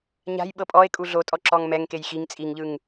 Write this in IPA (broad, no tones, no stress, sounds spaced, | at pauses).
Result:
ɲ a̤ j ɓ ɤ pʼ ɔ e̯ kʼ u ɮ o tʼ ɔ ǁ ɔ ŋ m ɛ ŋ k e j x i ŋ t͡sʼ i ŋ ʎ ɯ ŋ